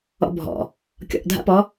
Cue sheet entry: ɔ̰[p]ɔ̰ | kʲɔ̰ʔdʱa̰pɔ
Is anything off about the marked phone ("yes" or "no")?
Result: yes